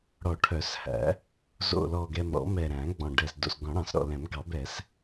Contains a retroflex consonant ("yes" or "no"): yes